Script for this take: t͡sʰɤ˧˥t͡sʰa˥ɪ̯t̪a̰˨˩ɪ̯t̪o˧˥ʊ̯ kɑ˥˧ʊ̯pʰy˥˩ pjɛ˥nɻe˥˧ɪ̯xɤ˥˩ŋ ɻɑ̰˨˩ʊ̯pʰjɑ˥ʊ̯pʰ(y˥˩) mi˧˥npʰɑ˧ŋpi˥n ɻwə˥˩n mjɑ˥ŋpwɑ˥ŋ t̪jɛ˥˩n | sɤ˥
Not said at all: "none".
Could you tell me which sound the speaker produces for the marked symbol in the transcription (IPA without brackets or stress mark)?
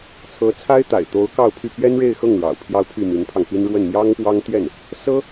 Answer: y˥˩